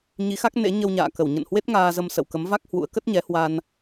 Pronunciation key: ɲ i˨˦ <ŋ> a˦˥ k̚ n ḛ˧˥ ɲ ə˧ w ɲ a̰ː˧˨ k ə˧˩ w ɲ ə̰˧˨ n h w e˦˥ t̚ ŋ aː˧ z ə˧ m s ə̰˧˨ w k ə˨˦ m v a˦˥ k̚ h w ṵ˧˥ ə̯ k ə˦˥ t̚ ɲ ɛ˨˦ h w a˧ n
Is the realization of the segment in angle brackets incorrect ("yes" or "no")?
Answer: yes